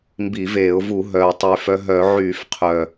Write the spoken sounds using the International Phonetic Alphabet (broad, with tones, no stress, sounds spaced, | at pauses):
m b i˧˩˧ v eː˧˩˧ ʊ̯ v u˧˩˧ ɦ œː˨˩ tˤ yː˨˩ f œ˧ ɦ œ˧˩˧ ʕ yː˧˩˧ f qʰ œː˨˩